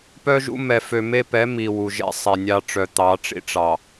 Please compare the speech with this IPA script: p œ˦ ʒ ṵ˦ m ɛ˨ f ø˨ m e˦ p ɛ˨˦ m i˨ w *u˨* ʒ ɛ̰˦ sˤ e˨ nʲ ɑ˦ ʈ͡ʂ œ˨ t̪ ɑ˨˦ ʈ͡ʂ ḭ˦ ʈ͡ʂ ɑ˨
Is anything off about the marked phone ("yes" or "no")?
no